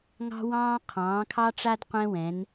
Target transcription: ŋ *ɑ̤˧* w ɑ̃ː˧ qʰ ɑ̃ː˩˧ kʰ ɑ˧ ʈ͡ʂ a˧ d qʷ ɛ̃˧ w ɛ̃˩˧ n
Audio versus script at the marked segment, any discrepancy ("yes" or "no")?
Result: no